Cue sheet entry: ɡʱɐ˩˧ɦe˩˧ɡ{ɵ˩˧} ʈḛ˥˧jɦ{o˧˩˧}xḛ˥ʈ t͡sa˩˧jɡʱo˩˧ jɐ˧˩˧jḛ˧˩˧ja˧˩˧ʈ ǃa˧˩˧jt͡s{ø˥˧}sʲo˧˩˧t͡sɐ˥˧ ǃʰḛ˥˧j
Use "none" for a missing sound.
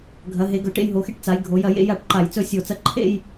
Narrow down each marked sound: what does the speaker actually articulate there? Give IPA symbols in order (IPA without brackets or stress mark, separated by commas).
ɵ˩˧, o˩˧, ɵ˥˧